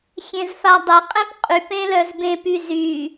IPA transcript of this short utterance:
xʲ ẽ z f a dˤ ɪ qʼ ẽ p qʼ y p ẽ l œ z b ẽ p y z y

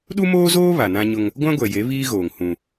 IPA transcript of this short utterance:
ɗ u˦ m oː˦ z oː˦ β a˨ n ã˦ ɲ ʊ˦ ŋ | ɡʷ ã˦ ɡʷ ɛ˨ j e˨˦ β iː˦ ɣ oː˨ ŋ h ũ˦

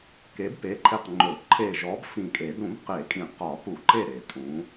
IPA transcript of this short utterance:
k e˨˥ b p e˨˥ ǃʰ e˧˩ q ŋ͡ǃ ɵ˨˩˦ ǃʰ e˧˩ ʒ ɔ˨˥ b f ĩ˧˩ kʼ e˨˩˦ d ɾ ũ˨˩˦ b q e˨˩˦ kʼ ĩ˨˩˦ q ɒ˨˩˦ p u˨˩˦ ǃ e˧˩ ɾ e˨˩˦ tʼ ũ˨˥

